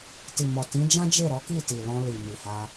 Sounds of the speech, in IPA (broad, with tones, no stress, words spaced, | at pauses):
ti˨mɔ˨ tĩ˨˦d͡ʒã˦d͡ʒe˦˨ ɾɔ˨˦ki˦˨ti˨ lɔ̃˧li˨mi˨ha˧